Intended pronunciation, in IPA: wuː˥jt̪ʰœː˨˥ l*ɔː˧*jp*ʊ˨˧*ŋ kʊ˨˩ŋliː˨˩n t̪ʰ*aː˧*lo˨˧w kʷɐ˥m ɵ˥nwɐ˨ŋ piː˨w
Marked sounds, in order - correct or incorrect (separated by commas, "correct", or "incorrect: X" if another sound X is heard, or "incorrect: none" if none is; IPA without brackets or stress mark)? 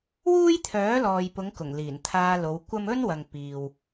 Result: incorrect: ɔː˨, correct, correct